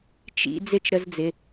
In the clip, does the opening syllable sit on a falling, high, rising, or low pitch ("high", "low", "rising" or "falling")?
high